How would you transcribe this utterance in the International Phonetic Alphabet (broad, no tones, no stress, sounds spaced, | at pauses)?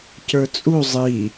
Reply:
c ə˞ t͡sʼ u zˤ i